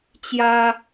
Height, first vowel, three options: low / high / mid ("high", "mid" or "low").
low